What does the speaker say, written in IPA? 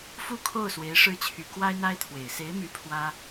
f u˥˧ kʰ o˥˩ ʊ̯ s w e˧˥ ɪ̯ ʂ ɻ̩˥˩ t͡ɕʰ y˧˥ k w a˥ ɪ̯ n̪ a˥ ɪ̯ t̪ʰ w e˨˩ ɪ̯ s e˧˥ ɪ̯ m y˧˥ pʰ w ä˥

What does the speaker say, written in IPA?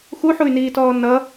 x u ħ u y̯ n iː t ɔː n ʌ

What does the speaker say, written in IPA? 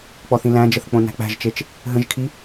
k͡p ɔ θ ĩ l æ̃ d͡ʒ ə θ k͡p õ n æ̤ k͡p æ̤ ʒ t͡ʃ e t͡ʃ | ɦ ə̃ ʒ kʰ i

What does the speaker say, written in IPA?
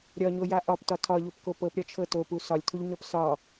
ɾʲ ɒ ɲ o j a ʔ ɒ p t ɒ tʰ ɒ ʎ o p k o p ɤ p ɾʲ ɒ t͡ʃʰ ɤ t o p u s ɒ lʲ tʰ u ʎ ɲ ɒ p s ɒ

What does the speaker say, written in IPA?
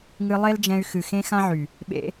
ŋ ɨ˧ lˠ e˦ l d͡ʒ ɛ̃˧ y̯ x ɨ˨ x ẽ˦ x ã˦ ʕ y˨ | ɓ ḛ˧

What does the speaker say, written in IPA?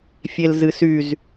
fʲ e l z ɨ s y z

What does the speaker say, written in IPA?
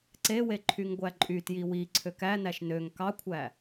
ǀ e w e ǃʰ y ŋ ɡʷ æ ǃʼ y t j i w i ǀʰ ø k æ n æ ʃ n ø ŋ k ɑ kʷʰ æ

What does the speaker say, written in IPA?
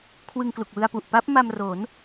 kʰ w ɯ˧ ŋ k l u˨˩ k̚ w ɯ˧ a̯ p u˨˩ ʔ p a˦˥ p̚ m a˧ m r o˩˦ n

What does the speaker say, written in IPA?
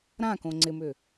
ɾ ã k õ ŋ͡ǀ ɪ m ʏ

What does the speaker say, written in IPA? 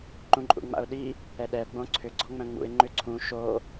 ǃ ũ ǃʼ ṵ ŋ͡m a̰ ʊ̯ ɗ i | ɛ ɗ ɛ ə̯ ɡ͡b õ ǀʰ ʏ ɡ͡ǀ ɔ ŋ͡m œ̃ ŋ͡m ṵ ɪ̯ ŋ͡ǃ ʏ ǀʰ ũ ʃ o

